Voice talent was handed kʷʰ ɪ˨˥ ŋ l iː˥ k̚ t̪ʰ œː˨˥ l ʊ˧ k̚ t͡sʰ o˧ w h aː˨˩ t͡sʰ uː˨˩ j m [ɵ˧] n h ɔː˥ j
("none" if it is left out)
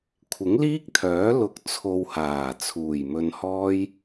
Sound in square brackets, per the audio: ɵ˧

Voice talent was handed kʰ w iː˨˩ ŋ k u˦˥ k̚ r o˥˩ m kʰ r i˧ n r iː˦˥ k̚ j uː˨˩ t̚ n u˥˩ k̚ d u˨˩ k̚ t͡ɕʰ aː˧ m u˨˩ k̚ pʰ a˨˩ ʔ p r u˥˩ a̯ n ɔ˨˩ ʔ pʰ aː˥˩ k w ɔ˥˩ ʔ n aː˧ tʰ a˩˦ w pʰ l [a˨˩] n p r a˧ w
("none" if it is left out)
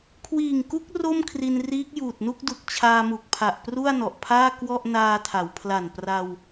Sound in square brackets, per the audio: a˨˩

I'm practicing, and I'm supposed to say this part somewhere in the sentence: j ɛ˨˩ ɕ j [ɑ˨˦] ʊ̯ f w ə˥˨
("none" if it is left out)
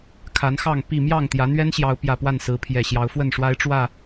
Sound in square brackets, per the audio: ɑ˨˦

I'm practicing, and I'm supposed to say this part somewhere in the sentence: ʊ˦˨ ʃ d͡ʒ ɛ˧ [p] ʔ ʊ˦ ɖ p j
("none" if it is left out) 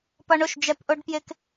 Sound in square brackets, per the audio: p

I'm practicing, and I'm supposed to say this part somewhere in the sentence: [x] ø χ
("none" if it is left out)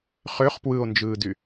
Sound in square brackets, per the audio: χ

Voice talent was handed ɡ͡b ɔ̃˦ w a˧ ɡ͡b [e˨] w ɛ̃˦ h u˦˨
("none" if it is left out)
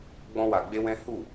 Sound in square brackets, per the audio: e˦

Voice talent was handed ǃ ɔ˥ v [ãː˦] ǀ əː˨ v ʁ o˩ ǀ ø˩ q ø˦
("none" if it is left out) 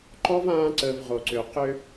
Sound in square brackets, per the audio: ãː˦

